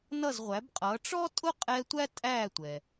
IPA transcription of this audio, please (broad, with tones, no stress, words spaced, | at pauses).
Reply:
nʌ˥˩zʁʷæ˩˥bqʼʌː˩˥ ʈ͡ʂɔ˥tʼʊ˥ qʼɛ˧ tʷæ˥ tʼæː˥˩tʷɛ˩